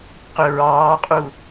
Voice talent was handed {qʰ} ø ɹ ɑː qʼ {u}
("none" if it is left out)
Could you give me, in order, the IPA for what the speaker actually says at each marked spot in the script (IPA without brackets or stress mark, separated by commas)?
q, u